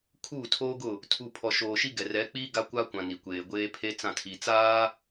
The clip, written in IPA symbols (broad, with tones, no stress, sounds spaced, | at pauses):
kʰ uː˦˨ tʰ oː˦ ɡ ʊ˦˨ | tʰ u˨ pʰ ɔ˨ ʃ oː˨ ʃ i˦ ɡ ɛ˨ r ɛ˨˦ k͡p iː˦ ɡ a˦ kʷ a˦ kʷ ã˨ n i˨ kʷ eː˨ ɡʷ eː˦ pʰ e˦ t͡s ã˦˨ tʰ i˨ t͡s aː˦